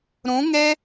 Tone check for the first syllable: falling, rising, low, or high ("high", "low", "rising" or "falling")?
rising